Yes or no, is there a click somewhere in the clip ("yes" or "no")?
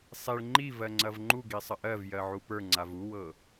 yes